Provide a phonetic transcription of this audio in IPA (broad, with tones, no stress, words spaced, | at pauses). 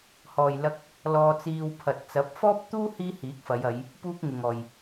hɔː˨jlɐ˧k̚ | lɔː˧t͡siː˧w pʰɐ˨t̚t͡sɐ˨˥p̚ fɔː˥p̚t̪uː˥ hiː˥hiː˨˥k̚fɐ˨˧j ɐ˨˧j | puː˥k̚ŋɪ˨ŋɔː˨j